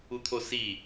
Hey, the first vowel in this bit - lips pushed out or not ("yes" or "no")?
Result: yes